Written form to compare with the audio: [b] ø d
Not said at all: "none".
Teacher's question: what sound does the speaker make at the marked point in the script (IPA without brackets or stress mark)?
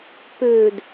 p